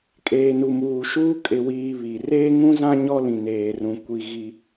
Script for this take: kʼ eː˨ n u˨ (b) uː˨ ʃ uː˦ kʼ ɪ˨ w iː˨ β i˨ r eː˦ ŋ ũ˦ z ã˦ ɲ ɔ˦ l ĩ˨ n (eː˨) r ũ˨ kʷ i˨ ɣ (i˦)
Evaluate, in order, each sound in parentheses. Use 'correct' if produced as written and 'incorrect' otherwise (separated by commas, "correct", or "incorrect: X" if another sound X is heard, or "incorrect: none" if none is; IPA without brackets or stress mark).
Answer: incorrect: m, correct, correct